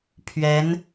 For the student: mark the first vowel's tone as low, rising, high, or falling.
rising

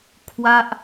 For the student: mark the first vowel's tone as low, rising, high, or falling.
falling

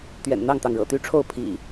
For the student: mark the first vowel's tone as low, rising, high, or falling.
low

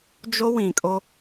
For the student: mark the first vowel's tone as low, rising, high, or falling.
high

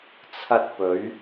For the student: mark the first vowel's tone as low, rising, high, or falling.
high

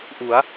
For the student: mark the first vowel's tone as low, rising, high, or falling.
rising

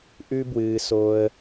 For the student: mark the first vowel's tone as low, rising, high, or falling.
high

